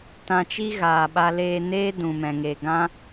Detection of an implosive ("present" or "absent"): present